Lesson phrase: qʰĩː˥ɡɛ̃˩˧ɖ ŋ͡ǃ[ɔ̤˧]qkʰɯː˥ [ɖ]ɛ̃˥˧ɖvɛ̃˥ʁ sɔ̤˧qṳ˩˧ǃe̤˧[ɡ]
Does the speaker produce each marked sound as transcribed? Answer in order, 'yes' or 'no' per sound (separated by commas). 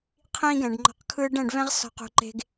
yes, yes, yes